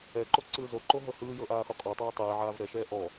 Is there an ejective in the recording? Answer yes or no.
yes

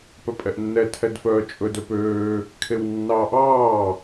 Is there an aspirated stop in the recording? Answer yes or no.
yes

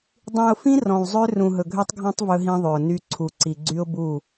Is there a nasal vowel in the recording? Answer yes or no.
yes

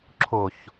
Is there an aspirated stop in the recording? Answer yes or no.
yes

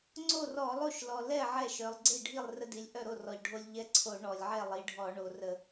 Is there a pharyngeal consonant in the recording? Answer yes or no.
yes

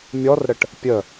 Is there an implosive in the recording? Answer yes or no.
no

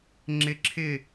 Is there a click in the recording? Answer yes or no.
yes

